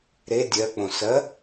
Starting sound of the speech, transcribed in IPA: ɾ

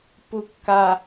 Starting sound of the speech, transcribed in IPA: p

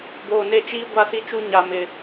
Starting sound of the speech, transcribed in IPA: b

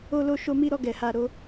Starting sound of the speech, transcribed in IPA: o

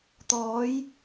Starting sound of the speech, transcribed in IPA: t̪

